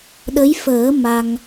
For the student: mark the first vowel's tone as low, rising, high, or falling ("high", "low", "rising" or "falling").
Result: rising